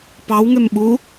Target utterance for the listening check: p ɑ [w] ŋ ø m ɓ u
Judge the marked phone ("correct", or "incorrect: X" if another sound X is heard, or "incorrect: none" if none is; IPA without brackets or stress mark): correct